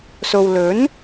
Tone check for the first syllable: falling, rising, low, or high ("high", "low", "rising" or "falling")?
low